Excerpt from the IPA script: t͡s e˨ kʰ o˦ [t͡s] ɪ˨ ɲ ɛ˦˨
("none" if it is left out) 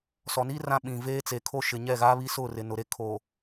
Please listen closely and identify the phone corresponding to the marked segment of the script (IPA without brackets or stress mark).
ʃ